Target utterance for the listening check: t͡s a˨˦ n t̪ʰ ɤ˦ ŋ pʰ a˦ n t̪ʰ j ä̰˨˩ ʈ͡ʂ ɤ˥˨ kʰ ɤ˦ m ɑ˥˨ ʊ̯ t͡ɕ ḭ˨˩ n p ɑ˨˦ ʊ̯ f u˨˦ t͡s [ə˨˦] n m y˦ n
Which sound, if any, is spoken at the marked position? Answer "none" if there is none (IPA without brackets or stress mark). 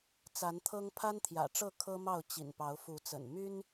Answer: ə̰˨˩